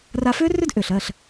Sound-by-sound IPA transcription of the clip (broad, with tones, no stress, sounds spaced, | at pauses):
r a˧ f ʏː˥ r ʏ˥ d ʔ ʏː˩ ɬ ɜ˥˩ ɬ